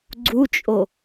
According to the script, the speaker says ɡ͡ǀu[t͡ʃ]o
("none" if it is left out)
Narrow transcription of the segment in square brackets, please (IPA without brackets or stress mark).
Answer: t͡ʃʼ